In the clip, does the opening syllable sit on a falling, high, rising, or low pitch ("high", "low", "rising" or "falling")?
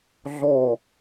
falling